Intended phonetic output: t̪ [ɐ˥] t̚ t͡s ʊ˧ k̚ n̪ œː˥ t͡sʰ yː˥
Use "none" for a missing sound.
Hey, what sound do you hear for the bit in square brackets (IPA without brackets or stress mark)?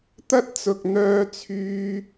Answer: ɐ˥